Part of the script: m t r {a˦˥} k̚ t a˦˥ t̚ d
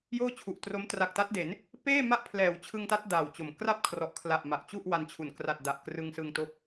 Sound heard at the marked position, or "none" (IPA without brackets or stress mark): a˨˩